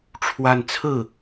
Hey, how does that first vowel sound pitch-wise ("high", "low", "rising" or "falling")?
falling